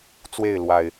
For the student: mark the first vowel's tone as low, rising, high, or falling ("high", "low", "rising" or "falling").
falling